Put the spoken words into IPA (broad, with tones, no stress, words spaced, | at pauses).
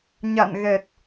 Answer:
ɲa̰˧˨nɣɛ˨˩t̚